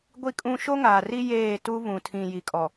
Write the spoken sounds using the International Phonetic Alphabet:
ɡʷi˦kʼũ˦ ʃo˦ŋaː˨ri˦ jeː˦˨tu˦ βũ˨tʰĩ˨ ji˨kʼɔ˨

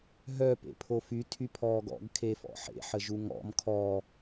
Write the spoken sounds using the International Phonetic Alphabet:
ɦœ pḛpʰofy tʰypʰɔːɡɔ̰ɡ kʰefɔ̰ħḛ ħəʒuŋɔ̰m kʰɔ

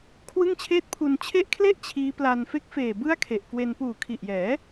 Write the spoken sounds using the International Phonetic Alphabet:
kʰwɯ˥˩ŋt͡ɕʰeː˥˩t̚pʰu˧n t͡ɕʰe˦˥ʔkʰle˥˩ʔ t͡ɕʰiː˦˥pla˧n fe˦˥k̚feː˨˩ bɯ˥˩a̯kʰe˨˩ʔkwe˧n puː˨˩kʰi˨˩ʔjɛː˩˦

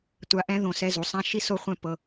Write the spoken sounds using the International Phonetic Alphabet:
tʷa˧ ʔɛ̃˥ ðõ˧sɛ˥˧ zu˩˧sˤã˥ ʃi˥so˥˧χʷɛ̃˥˧ pɤ˧

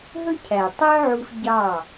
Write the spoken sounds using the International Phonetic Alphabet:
ɦɵ˦cʰæ˨tˤœ˦ʕu˧f ɟɑ˦˨

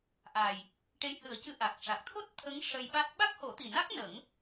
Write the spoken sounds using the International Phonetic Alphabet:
ʔa˨˩j | ʈe˧jhɨ˨˩˦ə̯cɨ˧ ʔa˨˩k̚ ʂa˨˩k̚t̪ʰo˦˥t̚ t̪ʰə˧˥ŋ ʂə˧jɓa˦˥t̚ ɓa˦˥k̚ho˨˩˦t̪i˨˩na˦˥k̚ nə˨˩˦ŋ

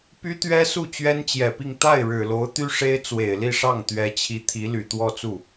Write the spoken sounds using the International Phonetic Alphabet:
py˥t̪ɥɛ˥ su˥˩t͡ɕɥɛ˥nt͡ɕjɛ˨˩pi˥˧ŋ t̪a˥˩ɪ̯ɻɻ̩˨˩lo˧˥ʊ̯ t̪y˥ ʂe˥ɪ̯t͡swe˨˩ɪ̯li˥˧ʂɑ˥˩ŋ t̪ɥɛ˧˥t͡ɕʰi˧˥ t̪ʰi˧˥ly˨˩t̪wɔ˥˧t͡su˥˩

